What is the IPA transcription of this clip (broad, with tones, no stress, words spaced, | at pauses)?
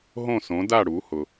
ɦõ˥˩sõ˩˥da˥˩ ɽu˩˥hʊ˩